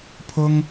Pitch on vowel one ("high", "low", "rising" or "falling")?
high